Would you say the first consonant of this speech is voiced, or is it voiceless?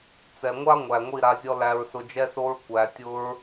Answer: voiceless